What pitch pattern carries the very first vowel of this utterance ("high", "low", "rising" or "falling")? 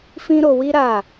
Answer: high